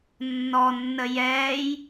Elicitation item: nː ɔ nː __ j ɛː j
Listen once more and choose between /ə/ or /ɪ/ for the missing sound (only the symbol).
ə